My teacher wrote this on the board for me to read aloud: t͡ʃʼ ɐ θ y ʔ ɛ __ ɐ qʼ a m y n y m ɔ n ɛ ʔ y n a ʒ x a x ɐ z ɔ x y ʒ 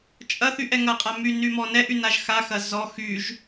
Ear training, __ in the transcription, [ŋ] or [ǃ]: ŋ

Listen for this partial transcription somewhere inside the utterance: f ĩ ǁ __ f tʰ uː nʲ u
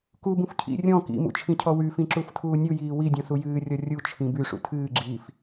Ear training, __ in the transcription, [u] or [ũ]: u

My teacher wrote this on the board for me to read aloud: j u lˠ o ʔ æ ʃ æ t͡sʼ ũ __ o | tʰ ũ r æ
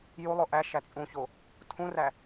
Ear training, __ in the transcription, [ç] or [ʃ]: ç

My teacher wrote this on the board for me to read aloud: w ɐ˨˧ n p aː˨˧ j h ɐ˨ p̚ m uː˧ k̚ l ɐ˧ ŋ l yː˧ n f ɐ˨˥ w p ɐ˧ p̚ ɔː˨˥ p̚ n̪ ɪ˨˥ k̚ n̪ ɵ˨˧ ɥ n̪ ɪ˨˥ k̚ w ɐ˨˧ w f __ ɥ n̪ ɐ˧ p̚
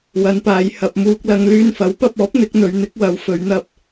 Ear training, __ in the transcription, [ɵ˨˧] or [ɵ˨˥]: ɵ˨˧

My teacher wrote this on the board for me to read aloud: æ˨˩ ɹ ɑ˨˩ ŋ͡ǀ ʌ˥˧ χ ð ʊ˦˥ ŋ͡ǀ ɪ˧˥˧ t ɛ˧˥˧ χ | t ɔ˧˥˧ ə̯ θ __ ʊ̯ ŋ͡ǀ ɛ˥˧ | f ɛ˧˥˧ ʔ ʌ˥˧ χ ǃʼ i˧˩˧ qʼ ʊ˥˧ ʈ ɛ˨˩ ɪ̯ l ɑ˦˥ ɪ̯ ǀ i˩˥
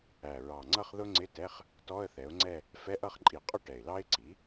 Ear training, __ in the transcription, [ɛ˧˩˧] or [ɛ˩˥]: ɛ˩˥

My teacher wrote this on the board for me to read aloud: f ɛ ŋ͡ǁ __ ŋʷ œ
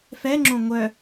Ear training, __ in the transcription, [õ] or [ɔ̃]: õ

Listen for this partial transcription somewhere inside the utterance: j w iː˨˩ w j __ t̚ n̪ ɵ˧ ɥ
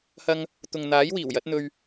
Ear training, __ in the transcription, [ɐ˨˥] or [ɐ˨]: ɐ˨˥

